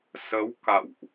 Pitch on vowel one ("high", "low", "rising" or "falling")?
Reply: rising